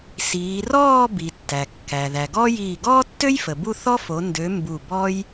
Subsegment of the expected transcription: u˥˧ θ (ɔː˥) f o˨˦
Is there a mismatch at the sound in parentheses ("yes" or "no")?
yes